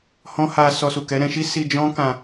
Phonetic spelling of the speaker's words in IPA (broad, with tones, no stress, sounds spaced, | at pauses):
h ɔ̃˦ h a˧ s ɔ˧ s u˨ k ɛ˨˦ ɾ ɛ̃˧ ʃ i˦ s i˧ d͡ʒ ɔ̃˦ k ã˧